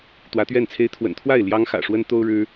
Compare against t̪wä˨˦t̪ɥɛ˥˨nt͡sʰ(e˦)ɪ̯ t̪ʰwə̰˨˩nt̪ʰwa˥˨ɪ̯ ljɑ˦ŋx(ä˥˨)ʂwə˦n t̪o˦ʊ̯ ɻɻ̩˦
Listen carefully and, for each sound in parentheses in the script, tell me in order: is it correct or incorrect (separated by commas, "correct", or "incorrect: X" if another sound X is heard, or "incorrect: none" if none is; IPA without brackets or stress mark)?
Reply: correct, incorrect: ä̰˨˩